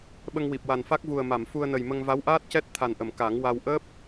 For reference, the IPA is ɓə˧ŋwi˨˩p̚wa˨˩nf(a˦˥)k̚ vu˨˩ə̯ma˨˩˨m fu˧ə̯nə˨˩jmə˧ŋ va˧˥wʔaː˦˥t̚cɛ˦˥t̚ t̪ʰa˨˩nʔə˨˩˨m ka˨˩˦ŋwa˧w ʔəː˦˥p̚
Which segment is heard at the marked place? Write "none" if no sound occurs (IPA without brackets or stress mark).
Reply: a˦˥